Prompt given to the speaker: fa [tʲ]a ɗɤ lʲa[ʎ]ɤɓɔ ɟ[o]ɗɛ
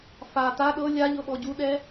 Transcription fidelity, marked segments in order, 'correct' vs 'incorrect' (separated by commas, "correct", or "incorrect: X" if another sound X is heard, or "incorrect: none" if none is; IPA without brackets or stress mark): incorrect: t, correct, incorrect: u